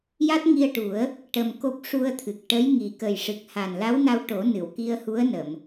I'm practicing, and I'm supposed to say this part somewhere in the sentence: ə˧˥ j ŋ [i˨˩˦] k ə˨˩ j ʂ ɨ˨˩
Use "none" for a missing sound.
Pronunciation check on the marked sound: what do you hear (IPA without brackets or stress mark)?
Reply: i˨˩